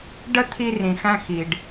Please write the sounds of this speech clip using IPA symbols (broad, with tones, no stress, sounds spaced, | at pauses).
ɖ ə˦ t̪ʰ i˧ r ĩ˨ x æ̃˧ x i˨ ɖ